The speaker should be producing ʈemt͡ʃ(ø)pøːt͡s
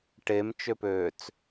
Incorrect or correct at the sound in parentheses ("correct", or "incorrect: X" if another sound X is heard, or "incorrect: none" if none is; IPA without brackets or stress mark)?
correct